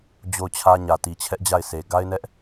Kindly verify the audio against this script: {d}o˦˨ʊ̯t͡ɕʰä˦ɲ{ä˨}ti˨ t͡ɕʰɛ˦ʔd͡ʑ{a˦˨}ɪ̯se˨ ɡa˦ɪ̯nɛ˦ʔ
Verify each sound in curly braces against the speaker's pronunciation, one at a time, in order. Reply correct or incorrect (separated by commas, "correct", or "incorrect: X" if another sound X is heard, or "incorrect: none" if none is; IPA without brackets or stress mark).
incorrect: d͡ʑ, correct, correct